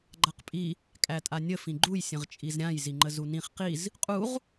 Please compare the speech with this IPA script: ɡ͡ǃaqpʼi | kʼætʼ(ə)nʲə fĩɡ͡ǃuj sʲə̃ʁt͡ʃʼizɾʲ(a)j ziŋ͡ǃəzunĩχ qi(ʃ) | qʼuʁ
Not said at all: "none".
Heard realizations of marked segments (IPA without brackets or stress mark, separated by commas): a, ã, z